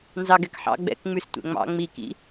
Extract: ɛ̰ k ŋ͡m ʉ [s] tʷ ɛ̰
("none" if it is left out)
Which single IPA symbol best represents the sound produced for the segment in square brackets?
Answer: s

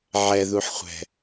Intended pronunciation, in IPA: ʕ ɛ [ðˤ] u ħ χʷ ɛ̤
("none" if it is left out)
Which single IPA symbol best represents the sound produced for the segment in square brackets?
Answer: ð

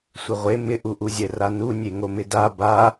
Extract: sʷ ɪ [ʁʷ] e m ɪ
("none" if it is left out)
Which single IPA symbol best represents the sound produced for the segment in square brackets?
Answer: ʁʷ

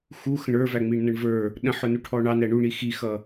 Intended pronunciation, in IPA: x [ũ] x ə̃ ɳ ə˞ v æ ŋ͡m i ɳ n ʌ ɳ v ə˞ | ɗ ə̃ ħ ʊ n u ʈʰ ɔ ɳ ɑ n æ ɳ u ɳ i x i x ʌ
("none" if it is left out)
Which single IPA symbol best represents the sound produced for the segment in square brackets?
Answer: u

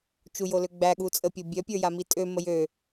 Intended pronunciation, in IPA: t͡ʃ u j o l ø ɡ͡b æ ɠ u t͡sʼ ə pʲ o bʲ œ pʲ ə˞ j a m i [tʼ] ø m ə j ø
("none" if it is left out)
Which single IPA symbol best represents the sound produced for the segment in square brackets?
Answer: tʼ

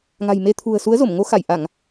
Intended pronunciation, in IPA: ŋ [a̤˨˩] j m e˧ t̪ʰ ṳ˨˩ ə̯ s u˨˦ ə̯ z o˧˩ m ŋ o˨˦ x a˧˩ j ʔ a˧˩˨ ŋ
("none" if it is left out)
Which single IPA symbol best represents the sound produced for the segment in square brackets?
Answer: a̤˨˩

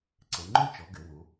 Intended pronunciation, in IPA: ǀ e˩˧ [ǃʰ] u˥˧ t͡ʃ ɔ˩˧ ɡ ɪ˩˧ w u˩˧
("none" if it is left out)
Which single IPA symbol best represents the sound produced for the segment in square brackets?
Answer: ŋ͡ǃ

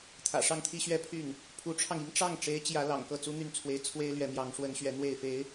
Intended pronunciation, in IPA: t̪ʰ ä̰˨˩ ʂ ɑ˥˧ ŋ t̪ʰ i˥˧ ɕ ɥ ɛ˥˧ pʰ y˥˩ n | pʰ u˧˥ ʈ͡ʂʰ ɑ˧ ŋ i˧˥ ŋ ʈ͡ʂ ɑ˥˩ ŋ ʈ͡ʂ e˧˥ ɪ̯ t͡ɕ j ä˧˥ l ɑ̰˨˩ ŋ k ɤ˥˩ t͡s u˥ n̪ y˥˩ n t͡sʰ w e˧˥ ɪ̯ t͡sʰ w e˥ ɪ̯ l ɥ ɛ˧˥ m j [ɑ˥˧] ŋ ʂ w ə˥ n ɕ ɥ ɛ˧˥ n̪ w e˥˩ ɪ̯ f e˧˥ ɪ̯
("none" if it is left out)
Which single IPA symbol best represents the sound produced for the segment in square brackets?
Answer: ɑ˧˥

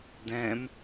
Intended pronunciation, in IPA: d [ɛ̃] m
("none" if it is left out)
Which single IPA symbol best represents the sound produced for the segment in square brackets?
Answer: ɛ̃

